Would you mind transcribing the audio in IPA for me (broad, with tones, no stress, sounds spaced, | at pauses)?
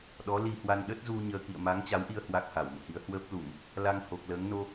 ɗ ɔ˨˦ l i˧ h w a˧ n ɗ ə˦˥ t̚ z u˧ ɲ əː˧ k ḭ˧˨ ə̯ m a˨˦ ŋ t͡ɕ a˨˦ w ʔ i˧ ə̯ h w a˦˥ k̚ h a˧˩ w m ṵ˧˨ h i˨˦ ə̯ h w əː˦˥ p̚ l u˧˩˨ m | l a˧ ŋ h o˨˩ k̚ l əː˨˦ ŋ n o˧